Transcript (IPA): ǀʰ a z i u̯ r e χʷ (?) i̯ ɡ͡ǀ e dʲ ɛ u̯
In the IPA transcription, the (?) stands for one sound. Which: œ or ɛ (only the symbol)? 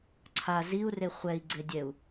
ɛ